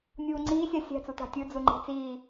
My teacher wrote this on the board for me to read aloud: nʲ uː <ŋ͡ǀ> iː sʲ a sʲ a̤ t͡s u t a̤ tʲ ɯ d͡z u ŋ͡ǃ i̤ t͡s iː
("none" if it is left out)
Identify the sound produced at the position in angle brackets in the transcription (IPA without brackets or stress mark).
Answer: ŋ͡ǀ